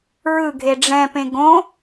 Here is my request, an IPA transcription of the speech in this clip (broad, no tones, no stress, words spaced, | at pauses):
ɹɯɡʱe ɖ͡ʐɛ̃pẽ ɡõ